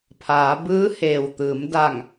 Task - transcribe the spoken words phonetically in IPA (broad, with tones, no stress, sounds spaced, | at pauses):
pʰ aː˩˧ b ɯː˧˥ h eː˩ w t̪ ɯː˩˧ m d a˧˩ ŋ